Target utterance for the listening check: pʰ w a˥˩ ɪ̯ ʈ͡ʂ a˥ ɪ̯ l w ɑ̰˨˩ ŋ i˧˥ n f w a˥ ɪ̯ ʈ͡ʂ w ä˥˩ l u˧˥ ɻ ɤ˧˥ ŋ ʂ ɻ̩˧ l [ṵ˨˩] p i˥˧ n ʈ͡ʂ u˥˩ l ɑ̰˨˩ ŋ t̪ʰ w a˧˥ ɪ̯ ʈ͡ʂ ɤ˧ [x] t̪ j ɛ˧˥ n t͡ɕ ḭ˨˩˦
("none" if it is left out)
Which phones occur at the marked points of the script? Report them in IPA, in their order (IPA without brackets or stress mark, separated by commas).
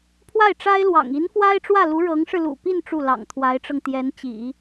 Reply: ṵ˨˩, ŋ